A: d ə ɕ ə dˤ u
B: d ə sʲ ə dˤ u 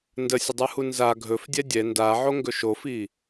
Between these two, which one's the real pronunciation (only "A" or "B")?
B